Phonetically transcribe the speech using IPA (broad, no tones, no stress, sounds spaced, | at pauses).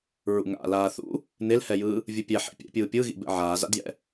ɹ ṵ ŋ a̰ l aː θ ṵ | n e l h ɛ j ɯː | vʲ ɯ pʲ ɛ ħ ḭ pʲ ɛ̰ pʲ ɯː pʲ ɯ ɣ ḭ b ɛ̰ ʕ aː z a̰ d j ɛ̰